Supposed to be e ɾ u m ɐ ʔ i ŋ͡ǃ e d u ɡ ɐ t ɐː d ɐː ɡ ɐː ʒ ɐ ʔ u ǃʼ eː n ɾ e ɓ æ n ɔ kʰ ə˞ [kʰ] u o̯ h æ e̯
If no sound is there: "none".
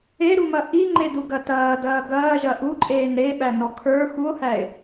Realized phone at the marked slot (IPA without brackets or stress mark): x